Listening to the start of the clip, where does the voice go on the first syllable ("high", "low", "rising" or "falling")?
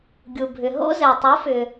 low